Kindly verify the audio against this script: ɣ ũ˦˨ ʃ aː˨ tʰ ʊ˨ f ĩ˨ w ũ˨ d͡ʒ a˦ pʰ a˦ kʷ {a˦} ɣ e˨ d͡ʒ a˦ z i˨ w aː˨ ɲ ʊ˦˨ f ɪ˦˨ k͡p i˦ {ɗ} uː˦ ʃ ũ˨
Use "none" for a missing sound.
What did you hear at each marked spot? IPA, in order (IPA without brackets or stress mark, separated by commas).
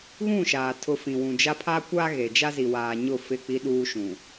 a˦, ɗ